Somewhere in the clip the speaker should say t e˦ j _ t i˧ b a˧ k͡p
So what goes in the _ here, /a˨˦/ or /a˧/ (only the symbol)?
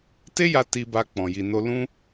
a˧